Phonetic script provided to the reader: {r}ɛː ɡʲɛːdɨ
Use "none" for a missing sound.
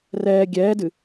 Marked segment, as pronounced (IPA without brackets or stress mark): r